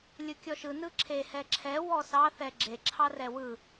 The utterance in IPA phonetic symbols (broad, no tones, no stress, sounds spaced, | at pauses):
lʲ ɯ kʲ ɔ ʃ ɯ n ɯ ǁʰ e h ɛ ǁʰ ɛ w ɔ s ɑ θ ɛ ɡ͡ǁ e ǁʰ ɑ r ɛ w ɯ